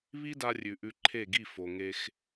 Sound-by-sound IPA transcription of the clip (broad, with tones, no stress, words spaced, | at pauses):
βi˦da˧rʲʉ˨ ʔʉ˧ǃʰe˦˨ɡi˦˨ fo˨ŋe˧x